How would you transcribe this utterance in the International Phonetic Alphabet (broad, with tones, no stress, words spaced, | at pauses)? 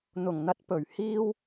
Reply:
n̪ʊ˨˩ŋn̪ɐ˨˥t̚pɵ˨˩ɥ hiː˧w